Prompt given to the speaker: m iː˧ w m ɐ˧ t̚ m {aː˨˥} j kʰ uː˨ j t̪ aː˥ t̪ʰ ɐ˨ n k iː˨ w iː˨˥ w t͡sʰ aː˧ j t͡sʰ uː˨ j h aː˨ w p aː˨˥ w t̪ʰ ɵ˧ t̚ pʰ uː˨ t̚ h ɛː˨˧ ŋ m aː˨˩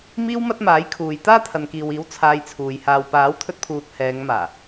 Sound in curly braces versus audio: correct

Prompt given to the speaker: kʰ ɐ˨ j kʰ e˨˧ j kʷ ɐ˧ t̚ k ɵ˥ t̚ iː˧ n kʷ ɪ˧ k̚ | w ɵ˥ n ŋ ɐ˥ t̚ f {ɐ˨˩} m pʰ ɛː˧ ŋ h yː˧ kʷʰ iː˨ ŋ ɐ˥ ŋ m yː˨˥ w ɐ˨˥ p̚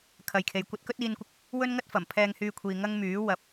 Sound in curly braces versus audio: correct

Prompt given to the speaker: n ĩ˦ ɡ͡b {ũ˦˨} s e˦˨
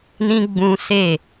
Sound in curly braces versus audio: incorrect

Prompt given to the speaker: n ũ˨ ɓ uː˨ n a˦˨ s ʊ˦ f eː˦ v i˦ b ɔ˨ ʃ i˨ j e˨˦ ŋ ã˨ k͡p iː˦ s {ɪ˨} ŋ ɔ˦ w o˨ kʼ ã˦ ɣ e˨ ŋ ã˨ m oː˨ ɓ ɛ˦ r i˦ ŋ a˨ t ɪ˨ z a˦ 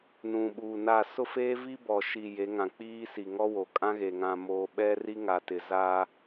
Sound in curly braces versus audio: incorrect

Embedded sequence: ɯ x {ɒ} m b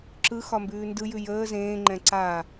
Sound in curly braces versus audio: correct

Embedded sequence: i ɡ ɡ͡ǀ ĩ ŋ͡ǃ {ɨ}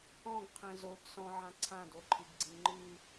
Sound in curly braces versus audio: correct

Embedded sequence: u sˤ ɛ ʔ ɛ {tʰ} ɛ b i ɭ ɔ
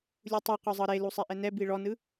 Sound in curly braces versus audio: incorrect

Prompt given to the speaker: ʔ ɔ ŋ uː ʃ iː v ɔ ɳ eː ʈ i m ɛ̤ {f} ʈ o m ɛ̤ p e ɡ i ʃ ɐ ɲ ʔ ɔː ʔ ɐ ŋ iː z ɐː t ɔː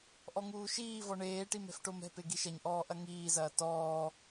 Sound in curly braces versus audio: correct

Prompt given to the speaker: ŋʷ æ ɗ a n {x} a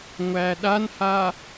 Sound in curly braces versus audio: incorrect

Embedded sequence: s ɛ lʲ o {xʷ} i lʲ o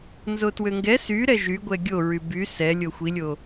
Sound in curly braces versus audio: correct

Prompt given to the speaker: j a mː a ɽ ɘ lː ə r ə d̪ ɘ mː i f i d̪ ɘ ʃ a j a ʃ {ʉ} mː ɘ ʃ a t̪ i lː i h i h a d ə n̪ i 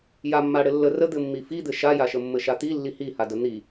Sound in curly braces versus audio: incorrect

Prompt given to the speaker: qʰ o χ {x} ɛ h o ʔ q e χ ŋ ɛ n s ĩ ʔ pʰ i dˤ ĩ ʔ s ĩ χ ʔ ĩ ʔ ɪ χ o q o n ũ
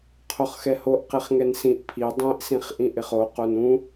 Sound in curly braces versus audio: correct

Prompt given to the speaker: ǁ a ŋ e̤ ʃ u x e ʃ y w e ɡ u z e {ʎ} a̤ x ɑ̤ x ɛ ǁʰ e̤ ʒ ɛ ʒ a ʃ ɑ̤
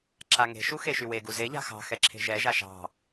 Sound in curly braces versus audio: correct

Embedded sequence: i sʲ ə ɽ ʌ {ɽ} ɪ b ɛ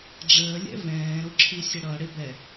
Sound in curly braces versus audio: correct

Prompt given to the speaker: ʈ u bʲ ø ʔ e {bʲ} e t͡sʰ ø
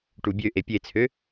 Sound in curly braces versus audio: incorrect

